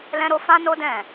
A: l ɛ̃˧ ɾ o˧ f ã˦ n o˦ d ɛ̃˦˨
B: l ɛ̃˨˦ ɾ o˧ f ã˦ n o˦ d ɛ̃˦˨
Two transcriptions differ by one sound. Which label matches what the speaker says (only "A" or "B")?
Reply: A